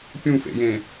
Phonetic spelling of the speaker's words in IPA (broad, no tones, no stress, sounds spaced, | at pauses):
pʲ ũ f ḛ j ẽ